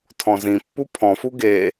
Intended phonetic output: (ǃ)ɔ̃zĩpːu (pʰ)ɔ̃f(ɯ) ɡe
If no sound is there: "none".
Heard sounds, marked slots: tʰ, pʰ, u

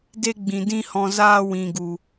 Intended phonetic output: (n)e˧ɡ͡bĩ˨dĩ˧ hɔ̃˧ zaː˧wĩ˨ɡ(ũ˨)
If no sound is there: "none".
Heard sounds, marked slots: d, u˨

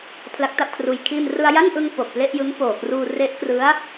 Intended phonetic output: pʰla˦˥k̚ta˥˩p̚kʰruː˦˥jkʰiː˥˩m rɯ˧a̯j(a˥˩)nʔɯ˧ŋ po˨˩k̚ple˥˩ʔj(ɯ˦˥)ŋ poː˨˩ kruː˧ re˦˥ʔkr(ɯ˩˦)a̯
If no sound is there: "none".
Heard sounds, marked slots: a˥˩, ɯ˦˥, ɯ˦˥

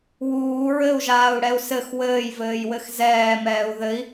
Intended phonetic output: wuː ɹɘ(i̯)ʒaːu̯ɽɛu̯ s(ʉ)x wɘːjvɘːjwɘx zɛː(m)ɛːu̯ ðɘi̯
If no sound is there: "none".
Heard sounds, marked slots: u̯, ɘ, m

